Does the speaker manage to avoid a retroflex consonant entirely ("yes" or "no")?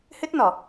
yes